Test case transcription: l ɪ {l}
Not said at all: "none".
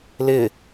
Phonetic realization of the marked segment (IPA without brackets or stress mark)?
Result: none